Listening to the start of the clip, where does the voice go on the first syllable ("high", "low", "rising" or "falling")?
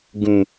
low